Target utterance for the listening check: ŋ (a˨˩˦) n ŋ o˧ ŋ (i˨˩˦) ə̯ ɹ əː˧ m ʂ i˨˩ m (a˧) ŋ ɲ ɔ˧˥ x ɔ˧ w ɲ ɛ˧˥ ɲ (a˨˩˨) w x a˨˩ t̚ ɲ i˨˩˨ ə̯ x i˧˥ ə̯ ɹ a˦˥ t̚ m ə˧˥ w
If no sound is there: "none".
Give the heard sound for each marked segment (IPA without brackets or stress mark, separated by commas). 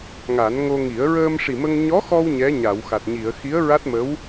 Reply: a˨˩˦, i˨˩˦, ə˧, a˨˩˨